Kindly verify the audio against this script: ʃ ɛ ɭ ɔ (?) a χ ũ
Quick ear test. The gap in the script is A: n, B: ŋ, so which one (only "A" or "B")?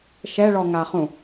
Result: B